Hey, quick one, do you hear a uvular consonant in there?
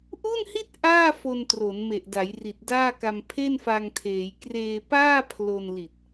no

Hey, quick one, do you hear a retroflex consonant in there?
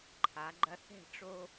yes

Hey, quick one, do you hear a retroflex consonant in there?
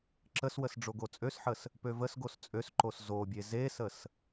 yes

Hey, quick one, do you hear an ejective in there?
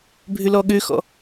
no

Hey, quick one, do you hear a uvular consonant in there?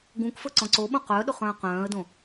yes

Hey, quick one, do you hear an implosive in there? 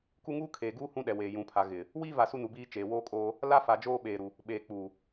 yes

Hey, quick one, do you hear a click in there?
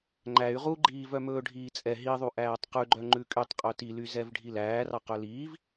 yes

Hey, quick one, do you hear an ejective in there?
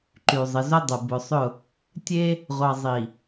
no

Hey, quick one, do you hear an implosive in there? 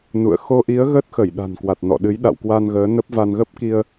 yes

